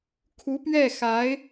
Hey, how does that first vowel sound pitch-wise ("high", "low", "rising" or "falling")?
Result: rising